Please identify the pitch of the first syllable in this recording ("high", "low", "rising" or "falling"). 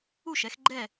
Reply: falling